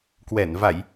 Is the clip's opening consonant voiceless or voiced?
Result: voiceless